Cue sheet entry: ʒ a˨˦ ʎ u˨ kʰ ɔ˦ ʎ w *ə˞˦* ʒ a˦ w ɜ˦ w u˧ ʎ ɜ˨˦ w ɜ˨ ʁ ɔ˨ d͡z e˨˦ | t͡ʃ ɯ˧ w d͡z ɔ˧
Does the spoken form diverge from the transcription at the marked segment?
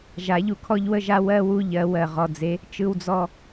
yes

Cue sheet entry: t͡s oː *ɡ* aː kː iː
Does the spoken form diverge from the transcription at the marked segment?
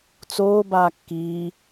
yes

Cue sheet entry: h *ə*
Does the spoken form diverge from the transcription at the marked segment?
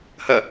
no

